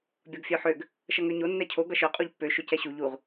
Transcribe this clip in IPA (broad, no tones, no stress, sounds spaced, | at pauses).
bʲ ɒ ɡ fʲ œ ħ ø ɡ | ʃ ʌ ŋ ø ɲ o nː ɛ cʰ o ɡ ʌ ʃ œ qʼ u ʎ pː ø ʃ ø c ɛ ɕ u ʎ u ʁ